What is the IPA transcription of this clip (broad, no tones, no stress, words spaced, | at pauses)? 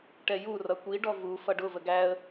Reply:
ʈɛju rʌkʷi ɖɔvu fʌɖʊ vəɡæə̯